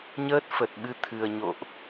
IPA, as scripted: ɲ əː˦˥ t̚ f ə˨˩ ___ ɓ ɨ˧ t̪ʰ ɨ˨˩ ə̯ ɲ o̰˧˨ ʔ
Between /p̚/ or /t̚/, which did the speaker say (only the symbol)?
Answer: t̚